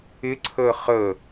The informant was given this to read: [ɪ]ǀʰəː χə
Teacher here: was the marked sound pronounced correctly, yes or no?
yes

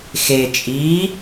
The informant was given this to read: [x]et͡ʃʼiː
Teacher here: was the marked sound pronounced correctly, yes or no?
yes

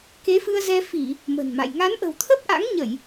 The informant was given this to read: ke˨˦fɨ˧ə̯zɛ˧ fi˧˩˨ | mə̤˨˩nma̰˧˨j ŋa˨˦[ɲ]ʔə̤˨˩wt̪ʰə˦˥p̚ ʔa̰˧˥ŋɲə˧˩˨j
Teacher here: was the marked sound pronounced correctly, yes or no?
no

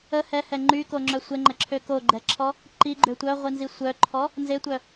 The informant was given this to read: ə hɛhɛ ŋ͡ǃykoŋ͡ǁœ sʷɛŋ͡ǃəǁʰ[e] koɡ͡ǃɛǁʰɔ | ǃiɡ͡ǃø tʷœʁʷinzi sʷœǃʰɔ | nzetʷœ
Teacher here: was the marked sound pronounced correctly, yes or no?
no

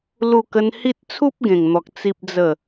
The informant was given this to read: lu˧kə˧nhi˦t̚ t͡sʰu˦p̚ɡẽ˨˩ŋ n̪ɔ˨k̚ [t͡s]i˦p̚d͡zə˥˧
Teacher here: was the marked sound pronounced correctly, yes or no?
yes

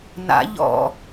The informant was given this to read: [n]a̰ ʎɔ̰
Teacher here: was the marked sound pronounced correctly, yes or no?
yes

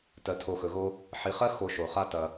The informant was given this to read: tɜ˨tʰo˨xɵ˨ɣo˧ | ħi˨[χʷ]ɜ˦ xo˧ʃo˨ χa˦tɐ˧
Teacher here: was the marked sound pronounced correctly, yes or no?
no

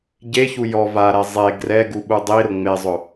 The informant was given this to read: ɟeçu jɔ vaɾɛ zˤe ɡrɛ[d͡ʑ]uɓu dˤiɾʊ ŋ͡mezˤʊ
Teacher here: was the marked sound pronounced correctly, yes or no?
no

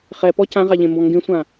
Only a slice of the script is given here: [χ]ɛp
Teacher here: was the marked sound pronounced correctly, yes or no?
yes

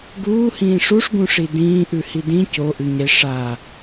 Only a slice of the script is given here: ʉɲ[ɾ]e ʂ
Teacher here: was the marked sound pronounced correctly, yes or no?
yes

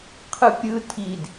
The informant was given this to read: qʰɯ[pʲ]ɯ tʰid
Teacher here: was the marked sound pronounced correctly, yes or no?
yes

